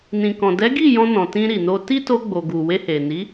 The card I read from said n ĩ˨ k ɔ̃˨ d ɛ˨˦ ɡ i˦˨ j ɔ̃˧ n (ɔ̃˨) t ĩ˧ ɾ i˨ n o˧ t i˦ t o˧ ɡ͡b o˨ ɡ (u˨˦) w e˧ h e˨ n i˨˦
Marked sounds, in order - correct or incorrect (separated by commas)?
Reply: correct, incorrect